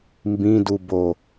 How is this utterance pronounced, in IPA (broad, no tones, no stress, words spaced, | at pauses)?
mbĩdubo